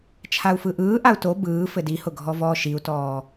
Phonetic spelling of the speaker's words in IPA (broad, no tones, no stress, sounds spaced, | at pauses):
t͡ʃʰ a u̯ f ɯ ʔ ɯː ʔ a u̯ t o b ɯː f ɘ d i h ʊ ɡʱ ɔ v ɔː ʃ i u̯ t ɔː